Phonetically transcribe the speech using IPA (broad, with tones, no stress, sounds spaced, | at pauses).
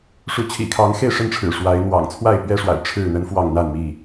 ʂ u˨˦ t͡ɕʰ ḭ˨˩ kʰ ɑ˨˦ ŋ x e˥˨ ɪ̯ ʂ ə˥˨ n ʈ͡ʂʰ ɻ̩˨˩ ʂ w a˨˦ ɪ̯ n̪ w ɑ̰˨˩ ŋ t͡sʰ w a˥˨ ɪ̯ p ɥ ɛ˦ ʂ w a̰˨˩ ɪ̯ ʈ͡ʂʰ ɻ̩˥˨ n̪ ə˦ n f w ɑ˥˨ ŋ n̪ a˥˨ n m i˥˨